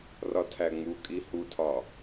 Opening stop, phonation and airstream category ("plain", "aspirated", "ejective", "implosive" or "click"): aspirated